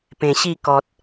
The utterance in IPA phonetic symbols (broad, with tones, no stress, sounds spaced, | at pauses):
p ẽ˨˩ ɕ i˥˧ k ɔ˨ t̚